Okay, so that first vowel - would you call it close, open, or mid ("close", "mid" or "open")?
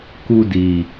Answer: close